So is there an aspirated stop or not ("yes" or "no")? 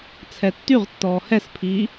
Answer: yes